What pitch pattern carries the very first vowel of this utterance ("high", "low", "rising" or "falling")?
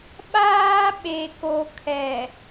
high